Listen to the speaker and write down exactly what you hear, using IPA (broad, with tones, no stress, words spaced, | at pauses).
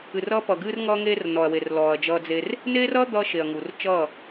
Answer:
ɨ˨rʌː˦pʌ˨ɡɨː˦r ŋʌː˦ŋeː˦rnɔː˨ɐ̯we˨r lɔː˨ɐ̯d͡ʒʌː˦d͡ze˦r | neː˦rʌː˦ d̪ʌː˦ʃe˨ɐ̯ŋu˨r t͡ʃʌː˦˨